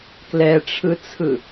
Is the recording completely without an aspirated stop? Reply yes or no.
no